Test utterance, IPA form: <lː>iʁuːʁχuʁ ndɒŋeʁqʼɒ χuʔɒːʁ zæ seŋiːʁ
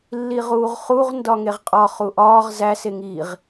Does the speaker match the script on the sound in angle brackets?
yes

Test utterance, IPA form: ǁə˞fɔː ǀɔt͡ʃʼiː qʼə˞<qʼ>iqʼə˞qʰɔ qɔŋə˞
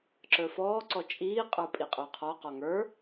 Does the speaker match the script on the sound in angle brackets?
no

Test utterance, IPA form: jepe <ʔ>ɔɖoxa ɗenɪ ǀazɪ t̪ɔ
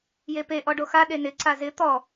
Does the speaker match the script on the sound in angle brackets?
yes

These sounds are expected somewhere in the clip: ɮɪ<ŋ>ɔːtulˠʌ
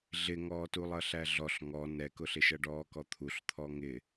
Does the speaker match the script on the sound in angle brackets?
yes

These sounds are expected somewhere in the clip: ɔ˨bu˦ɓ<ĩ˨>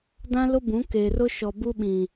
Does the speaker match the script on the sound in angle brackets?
yes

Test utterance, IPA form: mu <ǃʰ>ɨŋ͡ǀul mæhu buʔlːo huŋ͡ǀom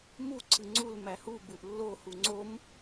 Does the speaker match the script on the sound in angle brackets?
no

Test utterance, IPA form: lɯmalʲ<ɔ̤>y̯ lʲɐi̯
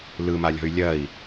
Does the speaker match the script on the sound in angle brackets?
yes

